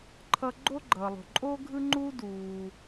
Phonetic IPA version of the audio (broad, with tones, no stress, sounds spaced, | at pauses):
ǃʰ ʌ˥ ɡ͡ǃ o˥ ɡ͡ǃ ʌː˩ lˠ o̤˩ ǃʼ oː˥ ɡʱ ɯ˥ ŋ͡ǃ uː˥ d uː˩